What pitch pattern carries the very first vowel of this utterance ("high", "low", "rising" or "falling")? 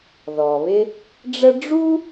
low